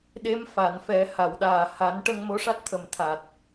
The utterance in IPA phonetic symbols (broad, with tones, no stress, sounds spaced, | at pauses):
ɗ e˧˥ m f a˨˩˨ n f ɛ˨˩˦ h a˨˩˨ w ɗ aː˨˩ h a˨˩˦ n ʈ ə˧ ŋ m o˧˥ ʂ a˦˥ t̚ t̪ʰ ə˨˩ m t̪ʰ a˨˩ t̚